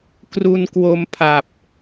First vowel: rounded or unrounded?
rounded